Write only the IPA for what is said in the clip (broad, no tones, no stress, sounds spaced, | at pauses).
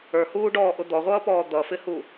ə˞ h uː ɖ ɔː ʔ ʊ d̪ ɔ ʁʷ ʌː p ɔː d̪ ʌ f ɪ h u